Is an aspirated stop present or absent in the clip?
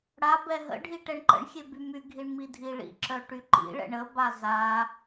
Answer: absent